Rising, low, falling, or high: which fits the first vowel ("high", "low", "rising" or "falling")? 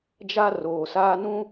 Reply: high